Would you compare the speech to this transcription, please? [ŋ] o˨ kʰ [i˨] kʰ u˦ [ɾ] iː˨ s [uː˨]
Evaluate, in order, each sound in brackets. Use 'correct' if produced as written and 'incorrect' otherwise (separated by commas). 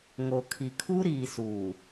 correct, correct, correct, correct